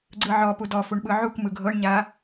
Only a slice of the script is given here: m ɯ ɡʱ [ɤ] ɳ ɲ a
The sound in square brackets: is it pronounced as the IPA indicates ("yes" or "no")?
yes